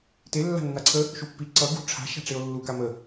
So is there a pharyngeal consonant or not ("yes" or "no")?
no